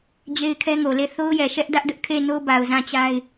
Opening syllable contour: high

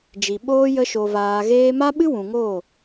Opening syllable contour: low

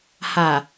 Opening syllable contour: low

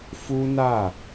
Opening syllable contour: high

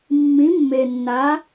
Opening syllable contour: rising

